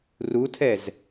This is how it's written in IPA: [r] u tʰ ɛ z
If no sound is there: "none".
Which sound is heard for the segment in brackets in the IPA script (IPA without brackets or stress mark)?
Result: r